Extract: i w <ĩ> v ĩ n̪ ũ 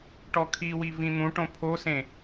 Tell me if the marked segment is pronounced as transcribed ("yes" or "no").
no